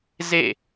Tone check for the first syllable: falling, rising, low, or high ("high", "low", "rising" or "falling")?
falling